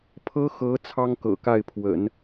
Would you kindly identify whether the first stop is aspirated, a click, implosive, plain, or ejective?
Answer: aspirated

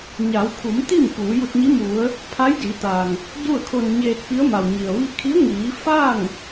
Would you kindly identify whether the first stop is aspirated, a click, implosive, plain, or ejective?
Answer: aspirated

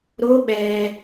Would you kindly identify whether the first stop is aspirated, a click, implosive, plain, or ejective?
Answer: implosive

